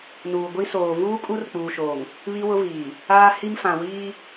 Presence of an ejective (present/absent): present